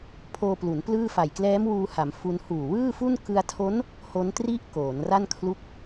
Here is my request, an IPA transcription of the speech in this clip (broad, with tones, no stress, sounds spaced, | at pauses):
pʰ oː˧ p l u˩˦ n p l ɯː˥˩ f a˨˩ j k l ɛː˦˥ m w uː˧ h a˩˦ m f u˧ n h uː˨˩ w ɯː˥˩ f u˥˩ n k ɯ˧ a̯ tʰ o˦˥ n | h o˦˥ n t r i˥˩ ʔ k oː˩˦ n r a˥˩ n kʰ l u˦˥ k̚